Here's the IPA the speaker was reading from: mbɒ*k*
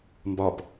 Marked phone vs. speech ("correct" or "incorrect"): incorrect